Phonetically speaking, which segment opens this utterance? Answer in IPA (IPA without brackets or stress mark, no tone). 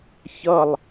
ç